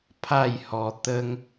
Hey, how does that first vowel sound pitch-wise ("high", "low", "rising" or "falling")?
falling